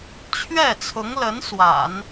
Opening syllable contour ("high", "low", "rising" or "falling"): falling